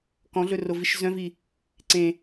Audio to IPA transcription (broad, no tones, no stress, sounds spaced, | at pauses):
k ɔ̃ ɮ ɵ r o v i ʃ z œ̃ v i | ǀ ẽ